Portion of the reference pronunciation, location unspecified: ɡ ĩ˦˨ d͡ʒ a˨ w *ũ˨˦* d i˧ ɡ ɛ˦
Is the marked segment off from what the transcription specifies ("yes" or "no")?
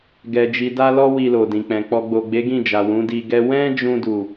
no